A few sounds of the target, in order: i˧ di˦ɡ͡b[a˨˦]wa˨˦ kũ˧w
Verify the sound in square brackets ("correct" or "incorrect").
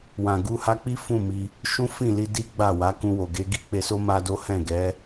incorrect